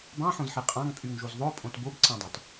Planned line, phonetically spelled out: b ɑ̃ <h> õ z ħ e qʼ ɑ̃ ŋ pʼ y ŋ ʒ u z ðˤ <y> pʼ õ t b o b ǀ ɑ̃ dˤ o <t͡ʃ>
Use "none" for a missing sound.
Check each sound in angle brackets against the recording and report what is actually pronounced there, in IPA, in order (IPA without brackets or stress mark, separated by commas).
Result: ħ, ø, t